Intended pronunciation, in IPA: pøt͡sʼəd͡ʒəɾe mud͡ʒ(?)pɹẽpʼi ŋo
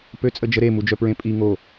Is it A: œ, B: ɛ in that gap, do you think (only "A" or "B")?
A